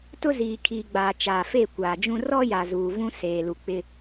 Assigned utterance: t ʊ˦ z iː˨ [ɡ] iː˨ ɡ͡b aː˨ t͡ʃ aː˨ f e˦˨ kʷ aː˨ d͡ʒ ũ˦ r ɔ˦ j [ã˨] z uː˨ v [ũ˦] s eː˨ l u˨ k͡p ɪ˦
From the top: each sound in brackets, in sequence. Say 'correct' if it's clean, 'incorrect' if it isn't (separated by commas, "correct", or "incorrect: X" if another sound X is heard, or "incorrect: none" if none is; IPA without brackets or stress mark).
incorrect: kʰ, incorrect: a˨, correct